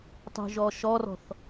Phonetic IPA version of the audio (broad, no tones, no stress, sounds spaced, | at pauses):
tˤ o̤ ʒ ɔ ʃ ɔ r ɔ̤ θ